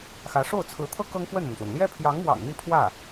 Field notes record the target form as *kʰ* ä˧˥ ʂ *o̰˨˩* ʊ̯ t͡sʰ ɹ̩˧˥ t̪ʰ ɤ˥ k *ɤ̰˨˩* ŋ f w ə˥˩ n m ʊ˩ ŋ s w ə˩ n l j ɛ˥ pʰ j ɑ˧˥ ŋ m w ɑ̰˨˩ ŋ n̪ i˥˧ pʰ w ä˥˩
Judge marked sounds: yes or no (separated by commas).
no, no, no